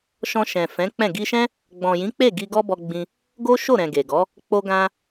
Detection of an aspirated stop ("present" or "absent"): absent